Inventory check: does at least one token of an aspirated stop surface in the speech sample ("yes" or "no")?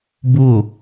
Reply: no